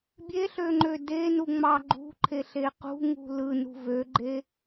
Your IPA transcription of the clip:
bʲ e ɬ ø ŋ͡ǃ ø d e n u ŋ͡m ɑ ɡ͡ǃ ṳ ǃʰ e ɬ e q ṳ ŋ ṳ l ɯ n ṳ v ø ɡ͡ǃ e

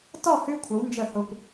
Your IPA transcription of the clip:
t ɔ˥˨ h ʉ˦ kʷʰ ə˨˦ w n d͡ʒ ə˥˨ h ʊ˦ kʷ

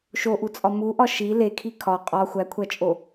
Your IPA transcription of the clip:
ʃ o ʔ u t͡sʼ ɒ m u ʔ ɒ ʃ i l e kʰ i kʰ ɒ qʼ ɒ xʷ æ kʷʰ æ t͡ʃʼ o

